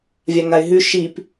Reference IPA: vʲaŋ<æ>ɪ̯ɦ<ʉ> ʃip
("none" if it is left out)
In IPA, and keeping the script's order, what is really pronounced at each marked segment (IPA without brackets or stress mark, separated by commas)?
a, ʉ